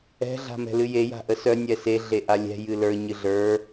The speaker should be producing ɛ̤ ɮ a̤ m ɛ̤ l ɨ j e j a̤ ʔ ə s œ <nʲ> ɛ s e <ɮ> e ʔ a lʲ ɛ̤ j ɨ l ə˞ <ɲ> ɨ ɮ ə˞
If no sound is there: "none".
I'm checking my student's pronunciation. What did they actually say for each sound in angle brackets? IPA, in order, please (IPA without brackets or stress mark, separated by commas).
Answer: nʲ, ɮ, ɲ